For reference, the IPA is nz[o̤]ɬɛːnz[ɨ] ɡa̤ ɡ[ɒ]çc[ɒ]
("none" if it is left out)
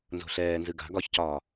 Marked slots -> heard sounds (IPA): o̤, ɨ, ɒ, ɒː

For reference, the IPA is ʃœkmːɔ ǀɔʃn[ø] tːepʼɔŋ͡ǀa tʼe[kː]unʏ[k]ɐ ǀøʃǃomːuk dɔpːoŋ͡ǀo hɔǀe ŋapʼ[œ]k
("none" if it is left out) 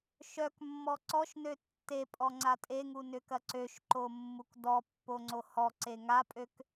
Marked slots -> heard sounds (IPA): ø, ŋ, k, ø

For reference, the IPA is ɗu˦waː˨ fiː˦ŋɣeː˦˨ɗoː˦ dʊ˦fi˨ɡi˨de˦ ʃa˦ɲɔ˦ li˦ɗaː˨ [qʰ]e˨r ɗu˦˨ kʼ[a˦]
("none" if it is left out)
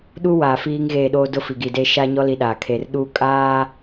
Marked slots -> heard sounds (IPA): kʰ, aː˦

